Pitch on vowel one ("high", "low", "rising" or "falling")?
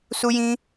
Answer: high